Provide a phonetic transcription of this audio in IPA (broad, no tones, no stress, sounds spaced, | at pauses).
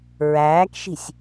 ɹ æː k ʃ i̤ sʲ